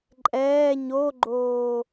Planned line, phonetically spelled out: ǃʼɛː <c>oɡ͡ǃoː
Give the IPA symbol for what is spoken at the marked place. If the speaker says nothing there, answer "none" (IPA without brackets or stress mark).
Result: ɲ